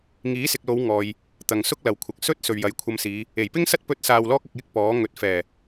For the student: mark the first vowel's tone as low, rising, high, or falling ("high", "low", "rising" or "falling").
rising